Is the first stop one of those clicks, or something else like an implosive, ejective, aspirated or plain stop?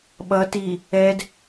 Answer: implosive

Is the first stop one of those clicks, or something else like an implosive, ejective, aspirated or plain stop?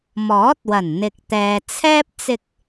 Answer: plain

